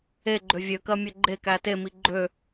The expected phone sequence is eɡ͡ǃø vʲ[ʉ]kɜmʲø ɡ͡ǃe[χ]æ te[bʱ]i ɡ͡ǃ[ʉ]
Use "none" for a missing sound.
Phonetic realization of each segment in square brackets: ø, k, m, ø

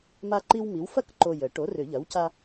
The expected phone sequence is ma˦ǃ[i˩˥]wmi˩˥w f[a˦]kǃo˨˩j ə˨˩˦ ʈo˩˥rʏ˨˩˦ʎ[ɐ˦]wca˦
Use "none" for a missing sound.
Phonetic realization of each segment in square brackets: i˦, ɐ˦, ɐ˩˥

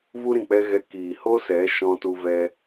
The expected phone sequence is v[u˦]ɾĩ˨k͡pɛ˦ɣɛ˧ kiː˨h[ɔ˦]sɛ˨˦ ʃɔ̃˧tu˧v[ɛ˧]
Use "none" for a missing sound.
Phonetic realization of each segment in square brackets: u˦, o˦, ɛ˧

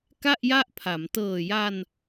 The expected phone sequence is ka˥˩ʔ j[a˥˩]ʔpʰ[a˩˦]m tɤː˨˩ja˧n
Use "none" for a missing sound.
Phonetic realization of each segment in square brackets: a˥˩, a˩˦

